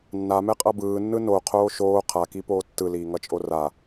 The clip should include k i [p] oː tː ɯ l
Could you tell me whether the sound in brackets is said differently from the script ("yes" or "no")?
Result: no